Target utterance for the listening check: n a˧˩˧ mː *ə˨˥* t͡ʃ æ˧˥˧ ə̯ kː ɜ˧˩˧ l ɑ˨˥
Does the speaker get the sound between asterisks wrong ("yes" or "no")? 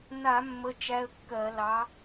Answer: yes